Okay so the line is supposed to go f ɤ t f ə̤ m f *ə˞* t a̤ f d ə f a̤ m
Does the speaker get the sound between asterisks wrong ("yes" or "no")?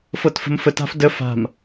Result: yes